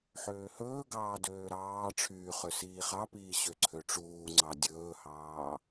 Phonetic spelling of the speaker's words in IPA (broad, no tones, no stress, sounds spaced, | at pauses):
ħ øː h ɵː ɡ ɑː d øː ɾ ɑː ʈ͡ʂʰ yː χ ø s iː χ ɑ p iː ɕ ø ǀʰ ø ʈ͡ʂ uː ŋ͡ǀ ɑ dʲ ɵː h ɑː